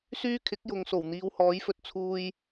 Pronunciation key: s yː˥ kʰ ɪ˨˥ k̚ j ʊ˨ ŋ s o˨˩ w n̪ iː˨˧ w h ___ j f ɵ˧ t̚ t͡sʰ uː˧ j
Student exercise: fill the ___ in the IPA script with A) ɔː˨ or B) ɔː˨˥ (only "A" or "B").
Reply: B